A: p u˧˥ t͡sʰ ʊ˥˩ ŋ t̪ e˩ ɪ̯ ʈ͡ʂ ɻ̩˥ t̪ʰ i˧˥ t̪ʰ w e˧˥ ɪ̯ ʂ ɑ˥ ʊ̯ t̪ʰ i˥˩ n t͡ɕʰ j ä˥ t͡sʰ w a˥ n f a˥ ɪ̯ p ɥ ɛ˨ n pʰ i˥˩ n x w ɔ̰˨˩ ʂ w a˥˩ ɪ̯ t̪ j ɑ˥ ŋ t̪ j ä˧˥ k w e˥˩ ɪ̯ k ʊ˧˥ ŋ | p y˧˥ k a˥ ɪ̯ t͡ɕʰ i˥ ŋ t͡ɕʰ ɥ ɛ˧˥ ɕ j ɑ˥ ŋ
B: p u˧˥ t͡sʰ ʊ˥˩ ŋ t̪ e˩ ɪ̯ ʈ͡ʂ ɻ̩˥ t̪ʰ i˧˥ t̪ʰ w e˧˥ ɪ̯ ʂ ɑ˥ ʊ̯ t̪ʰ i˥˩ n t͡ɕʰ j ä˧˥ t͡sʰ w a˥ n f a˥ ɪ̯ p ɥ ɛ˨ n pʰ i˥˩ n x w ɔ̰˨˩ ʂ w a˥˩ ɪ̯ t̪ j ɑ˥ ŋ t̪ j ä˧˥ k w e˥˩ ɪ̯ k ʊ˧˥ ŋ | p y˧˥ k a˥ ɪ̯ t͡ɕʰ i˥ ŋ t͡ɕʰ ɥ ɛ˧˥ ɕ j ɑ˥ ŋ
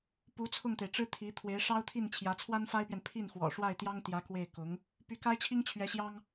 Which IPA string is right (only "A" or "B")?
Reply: B